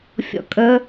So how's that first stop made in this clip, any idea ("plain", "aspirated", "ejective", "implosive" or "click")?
ejective